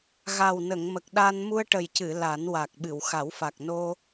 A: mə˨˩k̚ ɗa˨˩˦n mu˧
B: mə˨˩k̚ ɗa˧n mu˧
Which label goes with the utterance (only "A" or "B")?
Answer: B